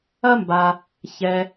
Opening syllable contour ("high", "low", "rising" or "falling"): high